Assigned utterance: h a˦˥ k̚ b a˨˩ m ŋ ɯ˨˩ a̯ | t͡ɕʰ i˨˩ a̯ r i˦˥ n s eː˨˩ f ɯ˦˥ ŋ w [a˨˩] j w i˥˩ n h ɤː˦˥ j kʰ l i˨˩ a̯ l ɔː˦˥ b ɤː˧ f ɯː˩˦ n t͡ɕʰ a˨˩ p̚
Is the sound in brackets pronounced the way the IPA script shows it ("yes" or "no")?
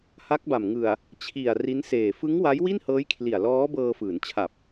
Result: no